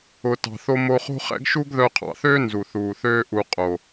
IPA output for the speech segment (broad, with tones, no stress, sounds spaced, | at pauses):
ʊ˨ t ɑ̤˨ θ o˧ m o˧ χ o̤˦ χ ɛ̰˦ ɡ ʃ u˦ ɡ ð œ˧ qʰ ɑ̰˨ θ øː˦ n z u˨ θ uː˨ θ øː˦ ʔ u˨ qʼ o˨